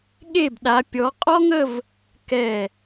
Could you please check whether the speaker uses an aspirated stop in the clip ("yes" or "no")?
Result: no